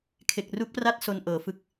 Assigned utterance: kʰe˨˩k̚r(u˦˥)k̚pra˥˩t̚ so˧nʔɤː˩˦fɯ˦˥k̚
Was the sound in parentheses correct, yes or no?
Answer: yes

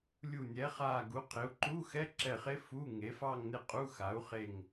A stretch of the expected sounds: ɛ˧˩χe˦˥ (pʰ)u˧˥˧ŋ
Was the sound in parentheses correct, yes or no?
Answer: no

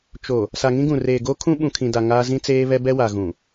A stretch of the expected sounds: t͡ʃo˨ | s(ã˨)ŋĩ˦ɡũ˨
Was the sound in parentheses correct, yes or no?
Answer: no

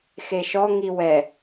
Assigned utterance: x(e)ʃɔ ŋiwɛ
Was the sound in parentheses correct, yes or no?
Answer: yes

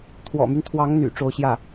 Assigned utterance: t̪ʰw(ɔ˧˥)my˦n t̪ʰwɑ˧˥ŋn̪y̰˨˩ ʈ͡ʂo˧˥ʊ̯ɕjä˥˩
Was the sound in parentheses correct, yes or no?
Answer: no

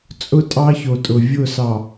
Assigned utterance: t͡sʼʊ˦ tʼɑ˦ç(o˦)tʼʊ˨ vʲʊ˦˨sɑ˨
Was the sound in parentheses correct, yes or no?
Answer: no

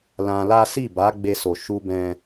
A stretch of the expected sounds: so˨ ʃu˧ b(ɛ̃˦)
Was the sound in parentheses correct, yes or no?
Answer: yes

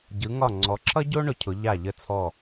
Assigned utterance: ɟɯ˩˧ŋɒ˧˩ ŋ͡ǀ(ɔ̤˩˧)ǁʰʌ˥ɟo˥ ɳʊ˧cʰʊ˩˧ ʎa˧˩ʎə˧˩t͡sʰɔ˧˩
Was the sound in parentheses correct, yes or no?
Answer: no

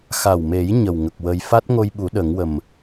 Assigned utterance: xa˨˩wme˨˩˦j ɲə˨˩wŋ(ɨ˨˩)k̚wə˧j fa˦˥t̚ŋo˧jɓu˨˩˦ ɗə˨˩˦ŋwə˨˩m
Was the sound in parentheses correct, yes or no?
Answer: no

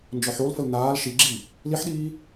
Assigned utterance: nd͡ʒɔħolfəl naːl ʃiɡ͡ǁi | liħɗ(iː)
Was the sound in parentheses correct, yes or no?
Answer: yes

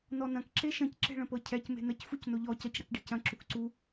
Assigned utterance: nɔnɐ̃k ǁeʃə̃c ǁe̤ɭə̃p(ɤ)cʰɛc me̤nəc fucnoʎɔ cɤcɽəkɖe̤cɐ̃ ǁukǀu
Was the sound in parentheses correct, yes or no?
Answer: yes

